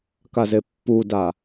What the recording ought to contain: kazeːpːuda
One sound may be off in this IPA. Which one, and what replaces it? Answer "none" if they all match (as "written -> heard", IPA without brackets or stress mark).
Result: eː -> e